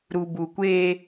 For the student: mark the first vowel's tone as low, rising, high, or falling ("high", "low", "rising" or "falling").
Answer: low